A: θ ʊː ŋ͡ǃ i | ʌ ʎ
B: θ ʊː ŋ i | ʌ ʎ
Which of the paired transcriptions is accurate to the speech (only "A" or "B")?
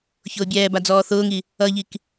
B